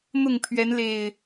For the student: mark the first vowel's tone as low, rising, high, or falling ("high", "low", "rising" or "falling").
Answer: falling